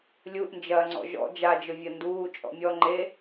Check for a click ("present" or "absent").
present